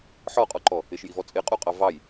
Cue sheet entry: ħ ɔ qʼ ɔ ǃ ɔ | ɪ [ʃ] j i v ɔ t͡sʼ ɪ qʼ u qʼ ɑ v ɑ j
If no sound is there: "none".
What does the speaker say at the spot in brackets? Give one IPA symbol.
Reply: ʃ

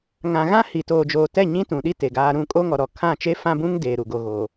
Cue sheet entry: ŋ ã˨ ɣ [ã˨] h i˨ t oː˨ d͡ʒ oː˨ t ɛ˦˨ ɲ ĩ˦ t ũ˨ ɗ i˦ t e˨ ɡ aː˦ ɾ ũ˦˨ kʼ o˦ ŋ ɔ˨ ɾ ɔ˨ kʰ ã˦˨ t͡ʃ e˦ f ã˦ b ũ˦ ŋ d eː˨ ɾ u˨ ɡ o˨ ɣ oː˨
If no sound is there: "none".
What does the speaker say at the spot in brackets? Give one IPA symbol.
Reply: ã˦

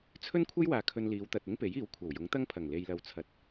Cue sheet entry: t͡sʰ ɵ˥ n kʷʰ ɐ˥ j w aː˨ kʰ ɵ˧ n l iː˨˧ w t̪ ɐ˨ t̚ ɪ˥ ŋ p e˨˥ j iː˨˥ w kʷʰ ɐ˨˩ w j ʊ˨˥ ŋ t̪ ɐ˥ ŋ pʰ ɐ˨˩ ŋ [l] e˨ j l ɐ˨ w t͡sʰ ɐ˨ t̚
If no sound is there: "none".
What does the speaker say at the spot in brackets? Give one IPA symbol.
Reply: l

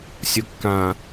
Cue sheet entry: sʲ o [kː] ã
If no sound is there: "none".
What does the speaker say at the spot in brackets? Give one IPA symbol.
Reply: kː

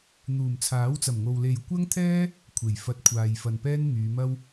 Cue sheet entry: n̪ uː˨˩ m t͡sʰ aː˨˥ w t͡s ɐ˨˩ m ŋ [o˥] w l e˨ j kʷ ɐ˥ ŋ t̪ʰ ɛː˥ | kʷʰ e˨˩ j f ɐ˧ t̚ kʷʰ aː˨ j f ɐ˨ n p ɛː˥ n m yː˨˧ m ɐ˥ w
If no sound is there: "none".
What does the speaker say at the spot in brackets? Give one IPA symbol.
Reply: o˨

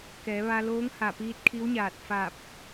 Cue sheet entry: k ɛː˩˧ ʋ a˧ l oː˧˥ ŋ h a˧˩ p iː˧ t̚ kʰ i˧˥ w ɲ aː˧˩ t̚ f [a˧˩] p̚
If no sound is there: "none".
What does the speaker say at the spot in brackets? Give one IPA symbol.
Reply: a˧˩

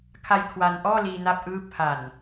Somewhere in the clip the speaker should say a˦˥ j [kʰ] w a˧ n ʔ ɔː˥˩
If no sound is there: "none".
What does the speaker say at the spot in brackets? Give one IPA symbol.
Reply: kʰ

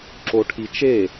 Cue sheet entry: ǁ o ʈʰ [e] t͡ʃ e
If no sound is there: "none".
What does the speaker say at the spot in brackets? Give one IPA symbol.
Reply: i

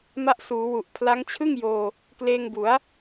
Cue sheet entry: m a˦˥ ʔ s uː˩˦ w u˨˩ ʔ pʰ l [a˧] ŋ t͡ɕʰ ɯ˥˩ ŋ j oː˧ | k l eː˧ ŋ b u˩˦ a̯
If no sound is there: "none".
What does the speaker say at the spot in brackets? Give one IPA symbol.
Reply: a˦˥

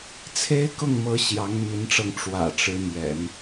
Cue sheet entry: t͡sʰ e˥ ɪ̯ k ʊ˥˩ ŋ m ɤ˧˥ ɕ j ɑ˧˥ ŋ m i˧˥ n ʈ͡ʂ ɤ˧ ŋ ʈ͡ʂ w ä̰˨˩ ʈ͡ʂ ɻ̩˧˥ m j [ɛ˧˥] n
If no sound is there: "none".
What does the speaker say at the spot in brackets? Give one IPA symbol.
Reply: ɛ̰˨˩˦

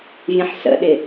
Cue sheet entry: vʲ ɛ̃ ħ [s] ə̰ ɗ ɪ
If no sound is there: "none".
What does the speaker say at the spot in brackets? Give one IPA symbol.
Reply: s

